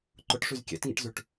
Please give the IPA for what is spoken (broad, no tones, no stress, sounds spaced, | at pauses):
ǃ ʊ ʈ ʂ y z kʲ ɛ̰ t ŋ ḭ ʈ z y ʈ